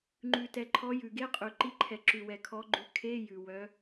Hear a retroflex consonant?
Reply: no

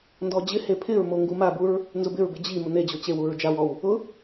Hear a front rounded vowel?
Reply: no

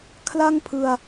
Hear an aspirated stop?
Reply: yes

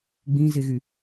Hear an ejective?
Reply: no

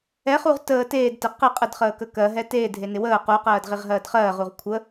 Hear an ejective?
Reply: yes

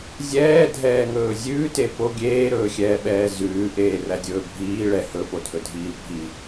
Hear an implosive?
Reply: yes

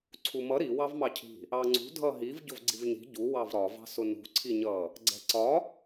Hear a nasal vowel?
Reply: no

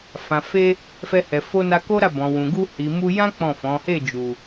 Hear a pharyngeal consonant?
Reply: no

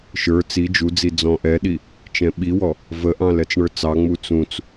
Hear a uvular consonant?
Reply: no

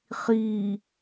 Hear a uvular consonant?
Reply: yes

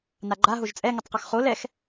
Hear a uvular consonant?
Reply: yes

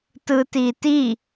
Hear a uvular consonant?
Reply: no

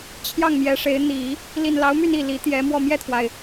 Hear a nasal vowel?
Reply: no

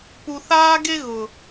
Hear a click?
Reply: no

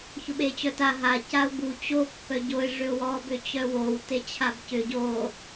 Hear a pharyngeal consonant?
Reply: no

